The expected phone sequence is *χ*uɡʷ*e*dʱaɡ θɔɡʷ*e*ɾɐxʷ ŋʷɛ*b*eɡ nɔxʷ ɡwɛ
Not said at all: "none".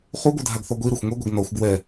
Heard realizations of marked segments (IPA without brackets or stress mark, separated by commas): χ, ɨ, i, ɡʷ